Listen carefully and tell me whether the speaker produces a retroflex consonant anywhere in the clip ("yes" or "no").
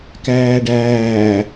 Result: yes